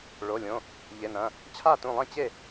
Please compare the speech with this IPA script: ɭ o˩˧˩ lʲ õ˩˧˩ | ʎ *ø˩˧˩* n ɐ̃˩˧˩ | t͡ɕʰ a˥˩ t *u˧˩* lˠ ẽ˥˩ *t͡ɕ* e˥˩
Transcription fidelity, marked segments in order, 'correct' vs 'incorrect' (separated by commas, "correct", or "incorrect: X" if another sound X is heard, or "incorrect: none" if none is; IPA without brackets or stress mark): incorrect: e˩˧˩, incorrect: ũ˧˩, correct